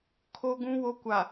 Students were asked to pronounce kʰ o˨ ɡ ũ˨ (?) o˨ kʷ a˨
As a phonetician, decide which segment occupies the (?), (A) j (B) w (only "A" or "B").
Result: B